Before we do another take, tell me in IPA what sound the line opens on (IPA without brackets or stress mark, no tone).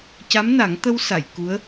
c